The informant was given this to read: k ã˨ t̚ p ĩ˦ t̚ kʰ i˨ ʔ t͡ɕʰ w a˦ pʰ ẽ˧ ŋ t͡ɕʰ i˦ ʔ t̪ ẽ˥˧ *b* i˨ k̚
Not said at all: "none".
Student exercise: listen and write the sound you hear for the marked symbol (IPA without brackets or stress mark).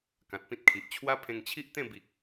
b